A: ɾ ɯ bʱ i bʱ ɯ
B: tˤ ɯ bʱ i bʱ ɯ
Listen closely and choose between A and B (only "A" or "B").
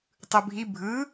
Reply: B